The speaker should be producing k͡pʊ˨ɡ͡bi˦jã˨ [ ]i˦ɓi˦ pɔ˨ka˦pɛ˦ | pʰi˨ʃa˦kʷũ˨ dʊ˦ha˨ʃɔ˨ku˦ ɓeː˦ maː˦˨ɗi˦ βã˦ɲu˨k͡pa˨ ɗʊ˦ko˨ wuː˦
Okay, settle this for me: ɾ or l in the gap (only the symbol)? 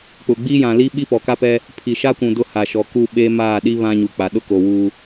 l